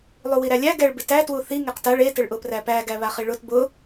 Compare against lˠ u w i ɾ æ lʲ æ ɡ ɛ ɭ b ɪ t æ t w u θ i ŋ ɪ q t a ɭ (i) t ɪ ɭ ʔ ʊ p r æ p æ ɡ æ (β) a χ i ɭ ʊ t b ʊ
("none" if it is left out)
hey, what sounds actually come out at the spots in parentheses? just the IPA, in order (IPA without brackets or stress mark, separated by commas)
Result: e, β